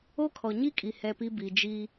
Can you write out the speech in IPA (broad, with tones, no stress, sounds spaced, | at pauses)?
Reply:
o˦ kʰ ɔ˨ ɲ i˦ kʼ i˨ h ɛ˦ p i˦ b i˨ d͡ʒ i˦